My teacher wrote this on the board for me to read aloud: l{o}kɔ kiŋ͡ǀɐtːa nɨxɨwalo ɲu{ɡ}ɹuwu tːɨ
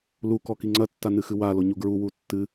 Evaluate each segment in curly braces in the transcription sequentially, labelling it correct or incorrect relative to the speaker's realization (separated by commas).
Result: incorrect, correct